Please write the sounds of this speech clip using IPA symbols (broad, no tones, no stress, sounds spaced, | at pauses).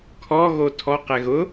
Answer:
kʰ ɔ ɣ o tʰ ɔ q ɛ ɣ ʊ